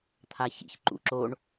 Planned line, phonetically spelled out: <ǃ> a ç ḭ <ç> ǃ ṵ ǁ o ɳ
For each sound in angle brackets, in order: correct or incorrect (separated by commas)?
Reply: incorrect, correct